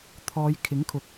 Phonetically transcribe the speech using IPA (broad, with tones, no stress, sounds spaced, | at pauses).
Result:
t̪ʰ ɔː˨˧ j kʰ ɪ˨˥ ŋ kʰ ʊ˨˥ k̚